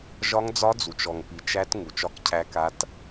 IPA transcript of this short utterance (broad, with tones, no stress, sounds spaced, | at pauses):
ʒ ɒ˦˥ ŋ d͡z ɒ˦˥ d͡z u˨ t͡ʃ ɔ˨ ŋ p i˨ t͡ʃ æ˦˥ t ŋ u˨ t͡ʃ ɒ˦˥ k cʰ æ˦˥ k a˦˥ t